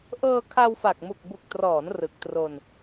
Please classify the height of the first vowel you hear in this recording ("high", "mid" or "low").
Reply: mid